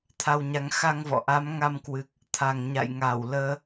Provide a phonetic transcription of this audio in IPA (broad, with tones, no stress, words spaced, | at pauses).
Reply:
t̪ʰa˧wɲa˨˦ŋ xa˧ŋvɔ̰˧˨ ʔa˨˦m ŋa˧mkwɨ˨˩k̚ | t̪ʰa˨˩ŋ ɲa̰˧˨jŋa˧˩wləː˧